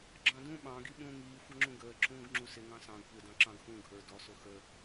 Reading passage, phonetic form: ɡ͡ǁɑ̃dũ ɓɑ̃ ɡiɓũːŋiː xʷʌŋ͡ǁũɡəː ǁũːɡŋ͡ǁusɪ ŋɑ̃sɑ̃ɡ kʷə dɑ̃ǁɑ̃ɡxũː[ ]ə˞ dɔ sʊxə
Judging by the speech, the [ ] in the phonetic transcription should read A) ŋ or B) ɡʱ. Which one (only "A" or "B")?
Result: B